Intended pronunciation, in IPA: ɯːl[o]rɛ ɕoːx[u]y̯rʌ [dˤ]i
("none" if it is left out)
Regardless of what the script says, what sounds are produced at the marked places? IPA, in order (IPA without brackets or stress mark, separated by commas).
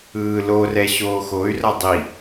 o, o, dˤ